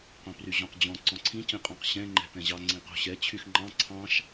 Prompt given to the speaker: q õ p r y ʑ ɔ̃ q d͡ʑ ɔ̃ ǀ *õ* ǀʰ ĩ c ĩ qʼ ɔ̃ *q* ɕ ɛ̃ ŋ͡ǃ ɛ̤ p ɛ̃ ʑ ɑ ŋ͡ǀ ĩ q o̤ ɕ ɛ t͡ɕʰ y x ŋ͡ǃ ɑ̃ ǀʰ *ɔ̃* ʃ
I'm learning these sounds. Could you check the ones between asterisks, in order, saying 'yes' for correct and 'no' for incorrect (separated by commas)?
no, yes, no